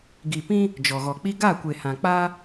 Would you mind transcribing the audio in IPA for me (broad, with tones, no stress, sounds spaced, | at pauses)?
ɡ i˨ p ĩ˦ | d͡ʒ ɔ˨ ɣ ɔ˨ k͡p i˦ ɡ a˦˨ kʷ e˨ h ã˨ k͡p a˦